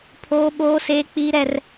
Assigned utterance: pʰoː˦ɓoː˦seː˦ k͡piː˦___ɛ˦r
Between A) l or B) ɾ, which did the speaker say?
B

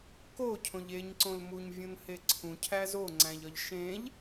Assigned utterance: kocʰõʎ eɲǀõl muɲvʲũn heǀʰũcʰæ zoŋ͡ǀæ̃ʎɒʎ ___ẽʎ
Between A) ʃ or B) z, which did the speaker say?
A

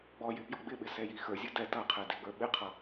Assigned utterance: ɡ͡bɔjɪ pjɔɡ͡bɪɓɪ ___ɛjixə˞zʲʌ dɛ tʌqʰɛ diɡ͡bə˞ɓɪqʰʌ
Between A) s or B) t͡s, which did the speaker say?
A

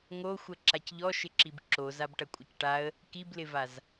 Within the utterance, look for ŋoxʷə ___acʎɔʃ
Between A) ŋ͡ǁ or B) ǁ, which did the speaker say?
B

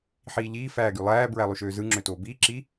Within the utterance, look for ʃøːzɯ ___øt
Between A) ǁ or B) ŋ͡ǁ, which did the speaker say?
B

